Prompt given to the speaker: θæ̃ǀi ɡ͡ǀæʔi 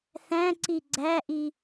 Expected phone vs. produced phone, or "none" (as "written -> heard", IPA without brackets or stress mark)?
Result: none